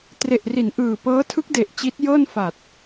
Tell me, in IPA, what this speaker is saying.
t r e˨˩ ʔ r i˩˦ n ʔ ɯː˨˩ p ɤː˦˥ tʰ ɯ˦˥ k̚ d e˨˩ ʔ t͡ɕ i˦˥ t̚ j ɤː˥˩ n f a˨˩ t̚

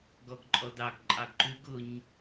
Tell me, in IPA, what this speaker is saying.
ɡ ɔ ɡ ǃʼ ɔ d ɑ ɡ ǃʼ ɑ ɡ ǃ ʉ ɡ ʊ ɲ

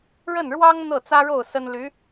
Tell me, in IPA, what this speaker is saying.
ɻ ə˥˩ n ɻ w ɑ˥ ŋ n̪ ɤ˥˩ t͡s ä˥ ɻ o˥˩ ʊ̯ s ə˥ n l y˧˥

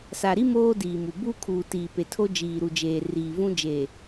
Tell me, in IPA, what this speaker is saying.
s a˨ ɾ i˦ m oː˦ d iː˨ m u˨ b u˦ kʰ uː˨ t iː˨ p e˨ tʰ o˦ d͡ʒ iː˨ ɾ u˨ d͡ʒ eː˨ r iː˨ v ũ˦ d͡ʒ eː˨

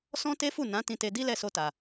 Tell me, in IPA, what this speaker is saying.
s ɔ̃˦ t e˦ f u˦˨ n ã˨˦ t ĩ˧ t e˧ d i˦ l ɛ˦˨ s o˧ t a˨

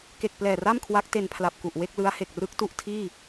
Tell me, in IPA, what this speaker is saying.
k e˨˩ k̚ p l ɛː˨˩ r a˥˩ m kʰ w a˦˥ k̚ t e˧ n pʰ l a˨˩ p̚ k u˨˩ ʔ w e˥˩ k̚ l ɯ˦˥ a̯ h e˨˩ k̚ r ɯ˦˥ k̚ t u˥˩ ʔ tʰ iː˥˩

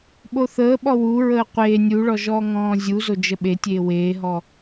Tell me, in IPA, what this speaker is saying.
ɓ o θ əː ɓ ɔ w u ɹ əː qʷ eː nʲ u ɭ ɔ ʒ ɔː ŋ ɔ̃ː zʲ u z o d͡ʒ ə ɓ e tʲ eː w eː ɦ ɔ

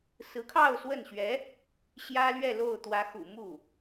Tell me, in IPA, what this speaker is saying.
s ɹ̩˧˥ kʰ ɑ˥˧ ʊ̯ s w ə˥˩ n ɕ ɥ ɛ˧˥ | ɕ j ä˥ l ɥ ɛ˥˧ l o˥˩ ʊ̯ t̪ w ä˧˥ x ṵ˨˩ m u˥˩

